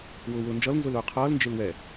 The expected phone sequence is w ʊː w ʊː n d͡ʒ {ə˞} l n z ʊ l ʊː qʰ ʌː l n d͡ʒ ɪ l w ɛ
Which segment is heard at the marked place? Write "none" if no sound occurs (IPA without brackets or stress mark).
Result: ʌ